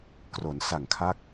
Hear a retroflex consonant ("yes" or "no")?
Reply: no